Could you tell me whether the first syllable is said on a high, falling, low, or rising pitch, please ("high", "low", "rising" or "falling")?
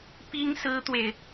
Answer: high